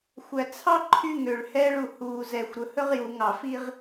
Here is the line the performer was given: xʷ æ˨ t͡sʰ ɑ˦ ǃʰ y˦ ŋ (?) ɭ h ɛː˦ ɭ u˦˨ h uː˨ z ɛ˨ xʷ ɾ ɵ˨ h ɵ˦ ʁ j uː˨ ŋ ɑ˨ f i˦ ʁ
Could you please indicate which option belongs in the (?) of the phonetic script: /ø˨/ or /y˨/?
ø˨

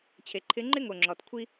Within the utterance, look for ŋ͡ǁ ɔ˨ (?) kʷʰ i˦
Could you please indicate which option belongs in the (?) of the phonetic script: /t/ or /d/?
t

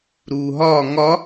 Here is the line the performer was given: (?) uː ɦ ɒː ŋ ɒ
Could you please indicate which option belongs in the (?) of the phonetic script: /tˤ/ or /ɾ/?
ɾ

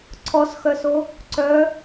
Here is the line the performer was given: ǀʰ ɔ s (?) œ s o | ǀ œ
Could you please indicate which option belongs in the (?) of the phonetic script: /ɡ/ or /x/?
x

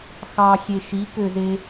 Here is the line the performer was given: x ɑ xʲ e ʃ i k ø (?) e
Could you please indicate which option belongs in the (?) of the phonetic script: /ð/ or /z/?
z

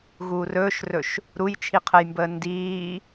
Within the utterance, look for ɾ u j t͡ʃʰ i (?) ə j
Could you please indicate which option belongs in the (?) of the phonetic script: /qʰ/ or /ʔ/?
qʰ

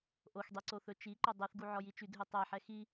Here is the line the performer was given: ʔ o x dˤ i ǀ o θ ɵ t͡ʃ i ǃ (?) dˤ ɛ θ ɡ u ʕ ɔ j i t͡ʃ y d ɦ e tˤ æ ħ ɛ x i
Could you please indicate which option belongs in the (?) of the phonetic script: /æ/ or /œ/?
œ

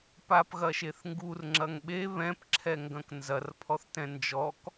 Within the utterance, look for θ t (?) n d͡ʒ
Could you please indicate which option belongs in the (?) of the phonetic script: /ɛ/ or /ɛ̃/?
ɛ̃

